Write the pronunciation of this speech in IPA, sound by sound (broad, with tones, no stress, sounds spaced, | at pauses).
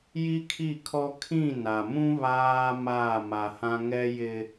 j i˦ kʰ i˦˨ kʰ ɔ˦ kʰ ĩ˦˨ n a˨ m ũ˦ β aː˦ m aː˦˨ m a˨ h ã˦ ŋ ɛ˦ j ɪ˦